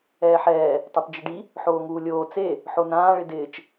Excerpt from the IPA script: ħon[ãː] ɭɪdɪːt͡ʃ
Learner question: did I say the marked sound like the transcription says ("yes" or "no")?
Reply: yes